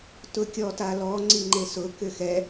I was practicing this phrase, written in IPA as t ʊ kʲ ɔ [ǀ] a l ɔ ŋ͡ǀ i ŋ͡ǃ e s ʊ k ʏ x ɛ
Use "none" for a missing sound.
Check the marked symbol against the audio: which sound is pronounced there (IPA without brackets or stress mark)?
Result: t